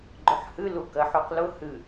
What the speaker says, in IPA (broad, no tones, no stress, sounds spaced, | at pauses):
ɡ͡ǃ ʊ ħ h ɨ l u k ɜ ħ u q l ʊ h ɨ